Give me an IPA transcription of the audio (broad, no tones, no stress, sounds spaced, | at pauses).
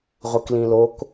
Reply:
ʁʷ ɯ k l ĩ l o k